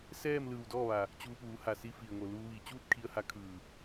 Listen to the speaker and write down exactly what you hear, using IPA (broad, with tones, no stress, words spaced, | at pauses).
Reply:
sɛː˥˨m lɯː˧˩wdɔː˥˨ʋa˩ | t͡ɕuː˧puː˩˧ha˩ si˧fi˩ə̯ŋo˩ luː˧ʋiː˧˩ t͡ɕuː˥˨t̚kʰi˧ə̯ha˧ kʰɯː˧˩